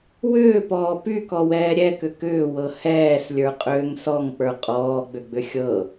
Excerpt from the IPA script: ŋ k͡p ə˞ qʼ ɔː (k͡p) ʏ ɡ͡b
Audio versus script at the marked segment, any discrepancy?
yes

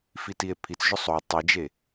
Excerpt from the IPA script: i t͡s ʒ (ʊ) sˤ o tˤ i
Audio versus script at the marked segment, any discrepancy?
no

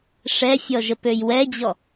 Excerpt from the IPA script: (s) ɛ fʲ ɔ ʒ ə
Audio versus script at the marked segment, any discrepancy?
yes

